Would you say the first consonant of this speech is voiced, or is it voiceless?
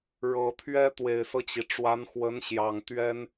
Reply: voiced